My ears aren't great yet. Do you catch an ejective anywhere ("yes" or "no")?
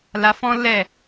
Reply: no